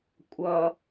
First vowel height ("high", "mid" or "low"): mid